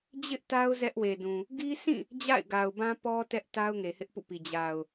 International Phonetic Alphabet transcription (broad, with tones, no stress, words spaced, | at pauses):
d͡ʑɪ˦ʔta˦ʊ̯ zɛ˦ʔwe˨dũ˨ | ɡi˦sĩ˦˨ | d͡ʑa̰˦˨ɪ̯ɡa˨ʊ̯bã˦pɔ˦ tɛ˦ʔta˦ʊ̯ ŋe˨hɪ˦ʔpṵ˦˨pi˨ d͡ʑa˨ʊ̯